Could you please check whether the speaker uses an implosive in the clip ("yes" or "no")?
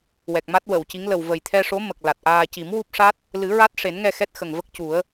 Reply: no